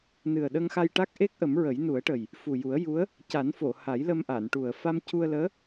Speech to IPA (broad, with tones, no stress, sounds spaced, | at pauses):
n ɨ˨˩ ə̯ ɗ ə˧ ŋ x a˧ j ʈ a˦˥ k̚ ʔ e˦˥ k̚ ʔ ə˨˩˦ m ɹ ə˨˩˦ j n u˨˩˦ ə̯ ʈ ə˨˩ j | f u˨˩ j u˨˩˦ ə̯ j u˧˥ ə̯ | c a˨˩˦ n f o˨˩˨ h a˨˩˦ j l ə˧ m ʔ a˨˩˨ n ʈ u˨˩ ə̯ f a˧ m c u˧ ə̯ l əː˧˥